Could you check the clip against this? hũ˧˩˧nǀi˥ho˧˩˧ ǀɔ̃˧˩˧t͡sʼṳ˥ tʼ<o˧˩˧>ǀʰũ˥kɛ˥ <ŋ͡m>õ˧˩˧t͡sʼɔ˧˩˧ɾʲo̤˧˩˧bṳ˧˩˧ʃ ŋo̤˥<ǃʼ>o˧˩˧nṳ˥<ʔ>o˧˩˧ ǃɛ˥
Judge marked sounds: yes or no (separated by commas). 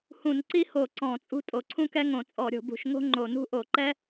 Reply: yes, no, no, yes